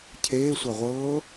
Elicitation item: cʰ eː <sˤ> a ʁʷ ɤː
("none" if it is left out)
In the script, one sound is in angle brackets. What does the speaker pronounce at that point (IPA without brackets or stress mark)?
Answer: sʷ